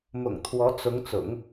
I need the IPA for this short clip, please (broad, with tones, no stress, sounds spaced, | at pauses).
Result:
m ʊ̰˨˩ ŋ t̪ʰ w ɔ˧˥ t͡s ʊ˧˥ ŋ t͡s ʊ̰˨˩˦ ŋ